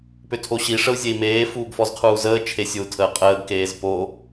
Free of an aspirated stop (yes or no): no